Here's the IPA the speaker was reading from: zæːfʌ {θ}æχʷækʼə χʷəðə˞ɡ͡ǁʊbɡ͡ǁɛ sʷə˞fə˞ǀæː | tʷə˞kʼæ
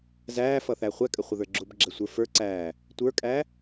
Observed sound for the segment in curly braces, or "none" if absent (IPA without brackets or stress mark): θ